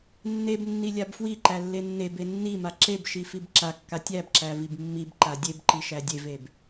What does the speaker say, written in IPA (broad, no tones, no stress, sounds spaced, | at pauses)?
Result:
nː e b nː i lʲ a b f w i ǃ æ lː e nː e b e nː i m a ǁ e b ʃ i f i b ǁ a kː a tʲ æ b ǁ æ v i b mː i b ǃ a dʲ e b ǃ i ʃ æ dʲ e v e b